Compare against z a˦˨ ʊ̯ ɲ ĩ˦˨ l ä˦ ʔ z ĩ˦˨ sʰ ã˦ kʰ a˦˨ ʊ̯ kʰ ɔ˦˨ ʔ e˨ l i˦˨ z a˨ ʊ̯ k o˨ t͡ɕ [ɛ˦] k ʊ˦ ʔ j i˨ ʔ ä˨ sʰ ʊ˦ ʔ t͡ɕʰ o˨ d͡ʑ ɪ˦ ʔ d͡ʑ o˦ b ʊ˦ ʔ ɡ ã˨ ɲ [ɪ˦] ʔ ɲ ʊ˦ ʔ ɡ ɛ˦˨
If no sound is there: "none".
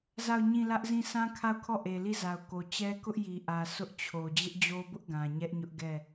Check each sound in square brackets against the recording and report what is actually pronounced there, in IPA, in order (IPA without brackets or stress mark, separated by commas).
ɛ˦, ɛ˦